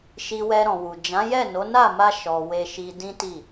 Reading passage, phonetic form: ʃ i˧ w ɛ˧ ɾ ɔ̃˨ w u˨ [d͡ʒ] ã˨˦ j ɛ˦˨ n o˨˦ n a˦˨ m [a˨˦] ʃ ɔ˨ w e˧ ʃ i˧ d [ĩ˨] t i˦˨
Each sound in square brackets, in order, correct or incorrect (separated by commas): correct, incorrect, incorrect